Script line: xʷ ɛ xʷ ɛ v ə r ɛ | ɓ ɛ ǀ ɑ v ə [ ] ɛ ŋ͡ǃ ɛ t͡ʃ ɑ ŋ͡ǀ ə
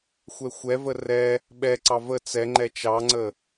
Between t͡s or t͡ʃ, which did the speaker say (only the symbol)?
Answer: t͡s